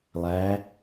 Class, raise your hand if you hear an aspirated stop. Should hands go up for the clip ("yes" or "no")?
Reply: no